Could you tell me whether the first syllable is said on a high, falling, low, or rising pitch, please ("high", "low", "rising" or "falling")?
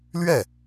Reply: falling